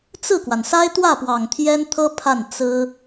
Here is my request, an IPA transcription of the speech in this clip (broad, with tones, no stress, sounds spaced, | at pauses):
t͡s ɹ̩˥˩ k w a˩ n s a˥ ɪ̯ t̪ w ä˥˩ p w ɑ˨˩ ŋ t̪ʰ j ɛ˥ n t̪ʰ ɤ˥ pʰ a˥˩ n t͡s ɹ̩˥